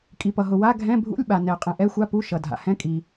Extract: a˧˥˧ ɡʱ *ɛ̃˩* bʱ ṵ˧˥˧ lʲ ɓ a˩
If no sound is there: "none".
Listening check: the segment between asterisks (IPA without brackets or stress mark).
ɛ̃˧˥˧